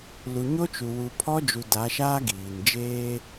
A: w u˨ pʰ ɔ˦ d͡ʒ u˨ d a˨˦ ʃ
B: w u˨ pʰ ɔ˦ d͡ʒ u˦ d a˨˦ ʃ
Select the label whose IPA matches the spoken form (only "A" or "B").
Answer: A